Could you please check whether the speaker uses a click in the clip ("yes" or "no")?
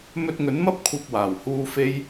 no